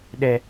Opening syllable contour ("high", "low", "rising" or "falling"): low